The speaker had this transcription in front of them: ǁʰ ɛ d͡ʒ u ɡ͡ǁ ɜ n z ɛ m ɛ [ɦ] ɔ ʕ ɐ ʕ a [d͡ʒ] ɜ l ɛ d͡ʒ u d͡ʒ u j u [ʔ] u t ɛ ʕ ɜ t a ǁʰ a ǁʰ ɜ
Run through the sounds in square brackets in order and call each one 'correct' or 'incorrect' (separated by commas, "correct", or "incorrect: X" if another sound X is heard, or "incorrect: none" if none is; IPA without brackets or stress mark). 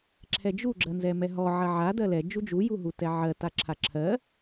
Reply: correct, incorrect: d, incorrect: ɦ